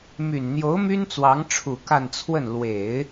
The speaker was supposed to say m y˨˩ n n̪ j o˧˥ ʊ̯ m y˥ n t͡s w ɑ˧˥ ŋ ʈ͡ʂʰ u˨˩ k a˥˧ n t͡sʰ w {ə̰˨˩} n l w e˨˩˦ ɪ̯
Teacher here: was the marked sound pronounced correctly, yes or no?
no